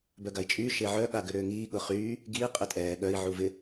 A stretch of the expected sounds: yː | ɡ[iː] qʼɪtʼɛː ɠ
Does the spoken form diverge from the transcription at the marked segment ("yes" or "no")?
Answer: no